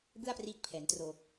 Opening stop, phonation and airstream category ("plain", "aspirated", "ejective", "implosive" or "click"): plain